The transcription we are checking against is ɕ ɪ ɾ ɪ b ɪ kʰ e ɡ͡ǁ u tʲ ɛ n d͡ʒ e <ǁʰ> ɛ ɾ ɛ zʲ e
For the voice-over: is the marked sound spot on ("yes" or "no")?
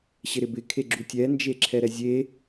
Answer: yes